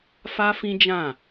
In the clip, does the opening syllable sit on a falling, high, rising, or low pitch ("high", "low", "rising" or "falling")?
high